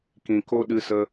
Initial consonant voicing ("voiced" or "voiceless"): voiceless